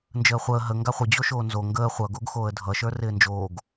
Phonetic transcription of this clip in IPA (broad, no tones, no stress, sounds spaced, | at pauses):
n d͡ʒ əː χʷ əː ɦ ə ŋ ɡ a χʷ ɪ d͡ʑ o ʃ oː n z o ŋ ɡ əː χʷ ʌ ɡ o ɡ x oː ə̯ dʱ ʌ ʃ ə˞ r ɪː n d͡ʒ oː ɡ